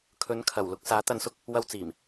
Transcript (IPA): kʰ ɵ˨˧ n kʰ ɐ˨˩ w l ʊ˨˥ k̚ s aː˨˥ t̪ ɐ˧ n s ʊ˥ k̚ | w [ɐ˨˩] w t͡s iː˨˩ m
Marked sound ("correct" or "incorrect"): incorrect